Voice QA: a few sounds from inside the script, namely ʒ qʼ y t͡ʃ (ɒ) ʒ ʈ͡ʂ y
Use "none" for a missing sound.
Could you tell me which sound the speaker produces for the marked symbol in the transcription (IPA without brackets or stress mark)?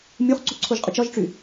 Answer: ɒ